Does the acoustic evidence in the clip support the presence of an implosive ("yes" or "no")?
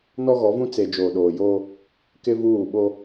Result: yes